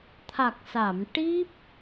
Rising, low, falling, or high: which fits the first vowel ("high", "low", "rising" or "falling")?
low